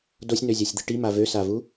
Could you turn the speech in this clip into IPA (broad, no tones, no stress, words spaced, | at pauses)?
dosʲnøzʲasʲd̪i ʈima vøsavu